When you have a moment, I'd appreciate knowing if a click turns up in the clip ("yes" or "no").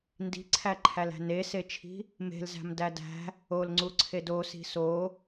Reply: yes